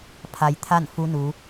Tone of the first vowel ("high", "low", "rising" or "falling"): low